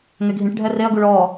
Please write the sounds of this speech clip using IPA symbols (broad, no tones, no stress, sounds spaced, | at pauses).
ŋ ɛ ɡʱ ĩ ʈ ɖʱ ɛ r e ɐ̯ ɡ u ɭ ɔ